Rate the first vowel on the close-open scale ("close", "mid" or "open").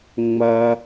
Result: open